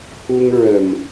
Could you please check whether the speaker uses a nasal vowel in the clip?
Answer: no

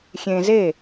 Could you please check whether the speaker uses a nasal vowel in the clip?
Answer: yes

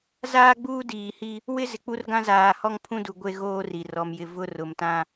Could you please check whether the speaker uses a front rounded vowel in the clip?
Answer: no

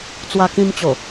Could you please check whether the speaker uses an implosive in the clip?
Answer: no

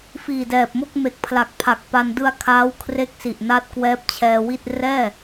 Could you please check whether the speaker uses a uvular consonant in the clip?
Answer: no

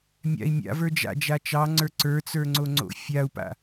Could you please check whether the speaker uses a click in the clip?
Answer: yes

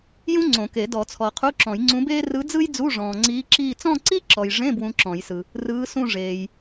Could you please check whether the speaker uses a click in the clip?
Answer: yes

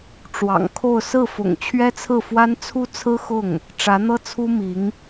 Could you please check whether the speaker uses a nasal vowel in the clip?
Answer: no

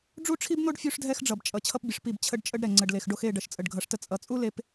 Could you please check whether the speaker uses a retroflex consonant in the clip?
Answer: yes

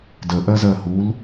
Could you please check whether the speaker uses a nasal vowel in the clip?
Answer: no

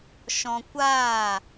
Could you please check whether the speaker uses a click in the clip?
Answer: no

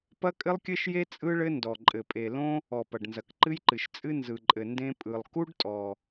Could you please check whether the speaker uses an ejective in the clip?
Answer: yes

